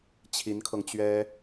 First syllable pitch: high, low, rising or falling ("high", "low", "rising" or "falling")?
rising